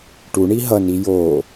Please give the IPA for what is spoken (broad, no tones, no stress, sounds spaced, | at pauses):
ʈ u ɳ i ɦ ʌ n i j o